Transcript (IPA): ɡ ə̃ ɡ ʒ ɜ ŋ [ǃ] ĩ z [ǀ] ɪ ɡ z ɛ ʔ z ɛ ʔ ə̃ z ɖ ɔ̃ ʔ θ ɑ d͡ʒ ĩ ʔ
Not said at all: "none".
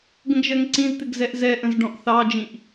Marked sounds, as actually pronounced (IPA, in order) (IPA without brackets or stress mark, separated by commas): ǀ, t̪